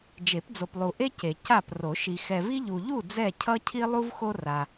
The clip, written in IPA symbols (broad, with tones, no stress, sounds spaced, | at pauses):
d͡ʒ e˨˩˦ p d͡z o˨ p lˠ u˨ ʔ e˦ c e˨ c a˥˨ p r o˨˩˦ ʃ i˨ x ɛ˨ v i˦ ʎ u˨ ʎ u˥˨ d͡z ɛ˥˨ cʰ ʌ˦ cʰ i˦ lˠ u˦ v x o˦ r a˨